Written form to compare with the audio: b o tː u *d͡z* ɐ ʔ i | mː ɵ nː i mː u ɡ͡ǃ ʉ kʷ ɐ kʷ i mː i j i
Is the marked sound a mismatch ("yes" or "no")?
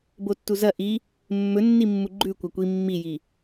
yes